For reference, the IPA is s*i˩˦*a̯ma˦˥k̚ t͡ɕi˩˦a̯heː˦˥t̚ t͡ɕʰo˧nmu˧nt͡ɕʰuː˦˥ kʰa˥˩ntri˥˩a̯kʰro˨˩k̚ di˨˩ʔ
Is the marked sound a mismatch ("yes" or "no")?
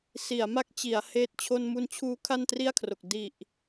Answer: no